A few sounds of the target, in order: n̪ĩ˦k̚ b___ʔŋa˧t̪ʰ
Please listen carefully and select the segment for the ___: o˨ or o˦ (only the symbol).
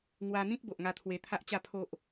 o˨